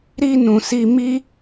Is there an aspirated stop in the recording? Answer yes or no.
no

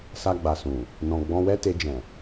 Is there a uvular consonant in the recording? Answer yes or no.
no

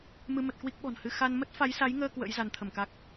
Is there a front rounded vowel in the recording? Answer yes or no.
no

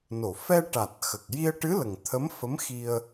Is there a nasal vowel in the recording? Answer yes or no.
no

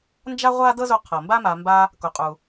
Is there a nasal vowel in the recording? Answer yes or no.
no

